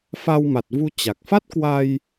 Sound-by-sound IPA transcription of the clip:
f a˧ w m a˨˩ t̚ v u˧ t͡ɕ a˨˩ k̚ f a˦˥ t̚ k w a˧ j

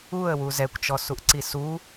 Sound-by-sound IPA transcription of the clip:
u ə̯ w u z ɛ kʷ t͡ʃ ɔ s u ʔ ǀ i s u

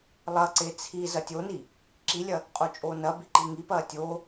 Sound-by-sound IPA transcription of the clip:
lˠ ɐ ǀ e t͡sʰ i z ɐ tʲ o n i | ǁ i lʲ ɐ | qʼ o t͡ʃʼ oː n ɐ b i ǃ i ŋ i p ɐː tʲ oː

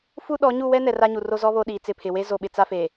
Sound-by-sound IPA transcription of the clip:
f u˦ ɗ ɔ˨˦ ɲ u˦˨ w ɛ˦ n ɛ˨ r a˦ ɲ u˨ r o˦ z ɔ˦ β o˦ ɗ iː˨ t͡s ɪ˦˨ pʰ ɪ˨ w e˦ z o˨ ɓ ɪ˨ t͡s a˦ f eː˨

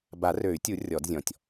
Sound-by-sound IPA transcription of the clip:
b a˨˩˦ r ø˨˩˦ y̯ tʲ u˨˩˦ rʲ ɔ˨˩˦ d zʲ ɔ̃˨ tʲ

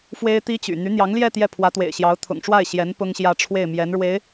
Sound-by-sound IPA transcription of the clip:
f w e˥ ɪ̯ t̪ i˥ t͡ɕ y̰˨˩ n̪ y˧˥ n̪ j ɑ˧˥ ŋ l j ɛ˥˧ t̪ j ɛ˥˩ pʰ w ä˧˥ t̪ w ḛ˨˩ ɪ̯ ɕ j ɑ˧˥ ʊ̯ t̪ʰ ʊ̰˨˩ ŋ ʈ͡ʂ w a˥˩ ɪ̯ ɕ j ɛ˧˥ n p ʊ˥ ŋ ɕ j ä˥˧ ʈ͡ʂʰ w e˥˩ ɪ̯ m j ɛ˧˥ n ɻ w e˧˥ ɪ̯

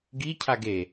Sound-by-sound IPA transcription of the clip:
ɡ i cʰ a ɡ e

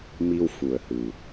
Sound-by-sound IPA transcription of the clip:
m i˧ w f u˨˩ ə̯ h ɨ˨˩

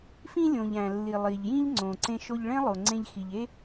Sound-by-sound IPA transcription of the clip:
f ĩ˧ lʲ õ˩ ʎ æ̃˩ lː i˩ lˠ i˩ ʎ j ĩ˥ ʎ ŋ͡ǀ õ˩ ǀ ẽ˧ ʃ o˧ ʎ ɭ ẽ˥ lˠ o˩ ŋ͡ǀ ẽ˧ ʎ x i˩ ʎ e˥

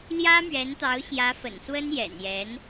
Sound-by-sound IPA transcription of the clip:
l j ä˥ m ɥ ɛ˧˥ n t̪ ɑ˧˥ ʊ̯ ɕ j ä˧˥ f ə̰˨˩ n s w ə˥ n j ɛ̰˨˩ n j ɛ˧˥ n

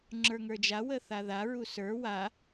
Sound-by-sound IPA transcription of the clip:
ŋ͡ǁ ə˞ ŋ ə˞ d͡ʒ a w ə θ a ð a ɹ u s ə˞ w a

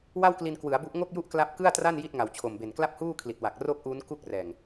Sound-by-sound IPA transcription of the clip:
w a˥˩ w k l i˧ n k w ɯ˩˦ a̯ b u˦˥ ʔ ŋ o˥˩ k̚ j u˥˩ ʔ k l a˦˥ p̚ k ɯ˥˩ a̯ t r a˥˩ n j i˥˩ t̚ ŋ a˨˩ w t͡ɕʰ o˨˩ m b e˨˩ n k l a˥˩ p̚ h uː˥˩ kʰ l i˨˩ t̚ w a˨˩ k̚ r o˥˩ k̚ ʔ uː˦˥ n k u˥˩ k̚ r ɛː˨˩ ŋ

